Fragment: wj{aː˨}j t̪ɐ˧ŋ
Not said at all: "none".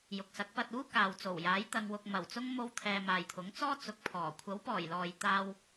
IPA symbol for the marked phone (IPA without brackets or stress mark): aː˨˥